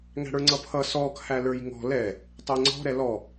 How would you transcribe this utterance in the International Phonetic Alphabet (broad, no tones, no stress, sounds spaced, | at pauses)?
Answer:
ŋ æ̤ ɽ ə˞ ŋ͡ǀ ʌ pʰ ʌ s ɔ kʰ æ l ə˞ j ŋ ɔ̤ l ɛ | tˤ ɛ ŋ͡ǀ ɔ̤ ɾ ɛ l ɔ